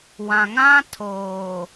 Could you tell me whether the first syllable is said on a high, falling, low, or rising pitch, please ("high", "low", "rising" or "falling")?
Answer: low